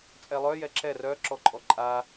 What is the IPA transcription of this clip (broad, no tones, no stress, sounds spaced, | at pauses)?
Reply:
t͡sʼ ɛ lˠ œ j ɛ ǁ ɛ r œ ǁ ɔ ǃʼ ɔ ǃʼ a